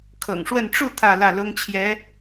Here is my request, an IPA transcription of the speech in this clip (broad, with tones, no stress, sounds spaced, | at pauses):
kʰ ɤ̰˨˩ ŋ ʂ w ə˥˧ n ʈ͡ʂ u˥˧ t̪ʰ ä˥˧ l ä˥˩ l ʊ˥ ŋ t͡ɕʰ j ɛ˧˥